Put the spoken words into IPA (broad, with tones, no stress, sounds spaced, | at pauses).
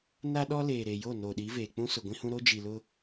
n a˦ ɗ ɔ˦ l eː˨ ɾ e˨ j o˦˨ n oː˨ ɗ i˨˦ v eː˨ k͡p ũ˦ s ʊ˨ ɡʷ ĩ˦ h ũ˦ ɾ o˦ d͡ʒ i˨ l ʊ˦